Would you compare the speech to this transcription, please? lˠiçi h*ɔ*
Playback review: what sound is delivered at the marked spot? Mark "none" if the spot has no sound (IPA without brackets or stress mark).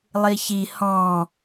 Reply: ɔ̃